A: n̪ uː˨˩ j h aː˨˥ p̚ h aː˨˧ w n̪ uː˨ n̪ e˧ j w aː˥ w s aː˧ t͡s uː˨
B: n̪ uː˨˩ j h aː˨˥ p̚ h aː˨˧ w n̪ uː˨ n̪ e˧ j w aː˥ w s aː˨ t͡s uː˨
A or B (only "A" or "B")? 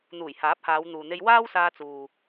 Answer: A